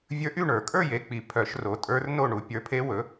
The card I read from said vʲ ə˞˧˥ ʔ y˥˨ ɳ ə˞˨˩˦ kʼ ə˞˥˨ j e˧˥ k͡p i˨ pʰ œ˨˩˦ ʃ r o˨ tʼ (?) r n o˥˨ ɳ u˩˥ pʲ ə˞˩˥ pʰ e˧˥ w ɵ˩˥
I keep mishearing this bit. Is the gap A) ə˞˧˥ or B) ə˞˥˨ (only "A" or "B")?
A